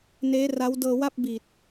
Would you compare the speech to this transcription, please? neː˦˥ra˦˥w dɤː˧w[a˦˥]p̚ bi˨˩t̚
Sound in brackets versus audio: incorrect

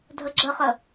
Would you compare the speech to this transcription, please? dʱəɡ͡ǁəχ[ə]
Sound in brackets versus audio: correct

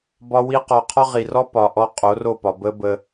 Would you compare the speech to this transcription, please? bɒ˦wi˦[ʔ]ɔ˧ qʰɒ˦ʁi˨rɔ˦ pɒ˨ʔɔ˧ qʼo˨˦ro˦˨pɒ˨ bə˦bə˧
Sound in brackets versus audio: incorrect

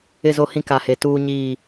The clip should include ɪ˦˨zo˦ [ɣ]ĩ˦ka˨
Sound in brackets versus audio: incorrect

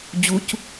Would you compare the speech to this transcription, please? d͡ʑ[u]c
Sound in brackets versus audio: correct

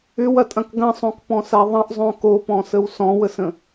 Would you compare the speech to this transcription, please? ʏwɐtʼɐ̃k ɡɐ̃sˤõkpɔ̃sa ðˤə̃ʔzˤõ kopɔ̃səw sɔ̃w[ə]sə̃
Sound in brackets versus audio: correct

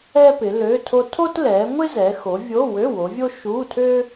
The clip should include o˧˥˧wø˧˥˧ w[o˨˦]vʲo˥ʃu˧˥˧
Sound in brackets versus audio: correct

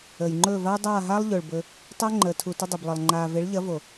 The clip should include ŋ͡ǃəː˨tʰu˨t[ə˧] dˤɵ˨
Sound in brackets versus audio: correct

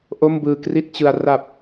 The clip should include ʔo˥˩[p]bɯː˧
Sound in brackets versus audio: incorrect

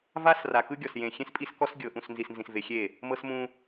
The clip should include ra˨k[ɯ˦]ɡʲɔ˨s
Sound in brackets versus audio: correct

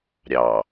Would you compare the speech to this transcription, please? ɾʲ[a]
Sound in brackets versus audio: incorrect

